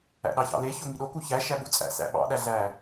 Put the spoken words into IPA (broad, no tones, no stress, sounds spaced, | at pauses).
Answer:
æ̰ ɗ ɑ ç ɑ̰ l e ç o ŋ i ɗ o k u ç æ ʃ æ ɓ u t͡sʼ æ̰ s æ̰ ɓ ɑ̰ ɗ æ ɮ æ